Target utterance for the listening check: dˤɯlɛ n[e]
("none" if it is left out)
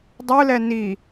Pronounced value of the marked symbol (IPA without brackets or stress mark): i